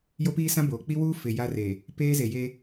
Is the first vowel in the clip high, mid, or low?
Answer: mid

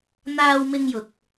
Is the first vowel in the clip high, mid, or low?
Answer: low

